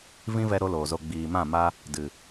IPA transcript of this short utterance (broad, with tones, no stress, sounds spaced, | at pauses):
v ĩ˦ v ɛ˧ ɾ o˦ l oː˨ z o˧ ɡ͡b iː˨ m ã˦˨ m a˦ | d ɨ˨